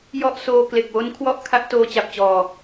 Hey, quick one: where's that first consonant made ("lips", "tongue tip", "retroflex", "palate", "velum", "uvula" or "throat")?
palate